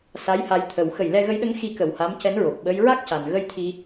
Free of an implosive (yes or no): no